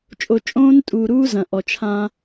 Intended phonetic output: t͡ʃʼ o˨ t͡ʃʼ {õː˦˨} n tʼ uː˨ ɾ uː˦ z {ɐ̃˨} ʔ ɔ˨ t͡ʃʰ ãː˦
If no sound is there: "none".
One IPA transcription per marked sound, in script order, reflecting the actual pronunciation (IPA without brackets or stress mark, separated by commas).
õː˦, ɐ̃˨